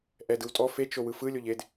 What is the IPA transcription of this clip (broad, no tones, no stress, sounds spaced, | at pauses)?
ʔ ɛ d ɯ w tʼ ɔ f e t͡ʃ o w ɯ f ɯ lʲ o ʎ e d